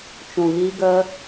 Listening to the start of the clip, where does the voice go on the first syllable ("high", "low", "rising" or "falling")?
low